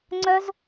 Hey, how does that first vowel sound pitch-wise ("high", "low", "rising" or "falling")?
high